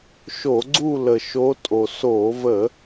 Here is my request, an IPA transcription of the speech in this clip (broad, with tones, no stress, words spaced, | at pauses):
ʃo˧˩˧ɡ͡ǀu˦˨lə˨˩ ʃo˧˥tʼo˨˩ so˧˩˧və˧˩˧